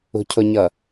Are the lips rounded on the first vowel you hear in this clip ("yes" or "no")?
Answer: yes